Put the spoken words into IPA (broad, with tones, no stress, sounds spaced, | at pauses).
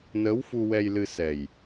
n əː˧˥ w f u˧ w ɛ˧ j l ɨ˧ s ɛ˨˩ j